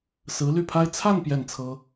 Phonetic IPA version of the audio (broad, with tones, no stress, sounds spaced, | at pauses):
s ɹ̩˧˥ l y˥˩ pʰ a˥ ɪ̯ t͡sʰ a˥˧ n p j ɛ˥˩ n t͡sʰ ɤ˥